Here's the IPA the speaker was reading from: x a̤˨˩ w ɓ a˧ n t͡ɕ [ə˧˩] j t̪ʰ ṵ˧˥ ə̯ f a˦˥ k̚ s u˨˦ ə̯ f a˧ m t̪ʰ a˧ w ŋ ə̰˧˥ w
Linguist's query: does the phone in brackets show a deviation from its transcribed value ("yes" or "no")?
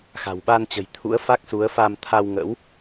yes